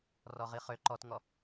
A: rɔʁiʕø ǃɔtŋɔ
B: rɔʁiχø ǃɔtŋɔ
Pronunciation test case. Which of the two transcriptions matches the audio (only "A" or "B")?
B